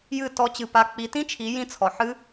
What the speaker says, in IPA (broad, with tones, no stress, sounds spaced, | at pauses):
j ɨ˥˧ t ɔ˨˦ t͡ɕ ɨ˨ p a˨˦ k͡p i˨˦ t ĩ˦˥ t͡ʃʰ i˨˦ j ĩ˥˧ t͡sʰ ɔ˨ ħ ɨ˦˥